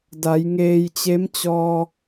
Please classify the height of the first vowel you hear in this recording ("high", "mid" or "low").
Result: low